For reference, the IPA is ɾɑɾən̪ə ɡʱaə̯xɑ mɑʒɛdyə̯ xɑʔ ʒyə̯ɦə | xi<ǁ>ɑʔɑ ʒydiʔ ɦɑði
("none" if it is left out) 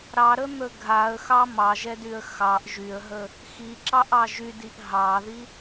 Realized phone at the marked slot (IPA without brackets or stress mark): ǁ